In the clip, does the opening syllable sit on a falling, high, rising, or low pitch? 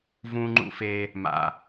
low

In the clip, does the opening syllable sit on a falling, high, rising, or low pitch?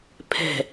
low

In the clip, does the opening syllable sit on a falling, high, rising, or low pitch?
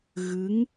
rising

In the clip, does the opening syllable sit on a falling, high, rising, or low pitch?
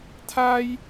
high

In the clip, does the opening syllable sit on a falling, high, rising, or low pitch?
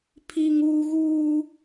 high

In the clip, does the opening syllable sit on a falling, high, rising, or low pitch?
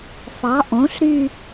rising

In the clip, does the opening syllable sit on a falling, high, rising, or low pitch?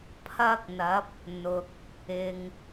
high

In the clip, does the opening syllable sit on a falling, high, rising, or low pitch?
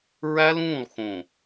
high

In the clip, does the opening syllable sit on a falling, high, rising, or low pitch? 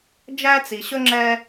high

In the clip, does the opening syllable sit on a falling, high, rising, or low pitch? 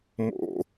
low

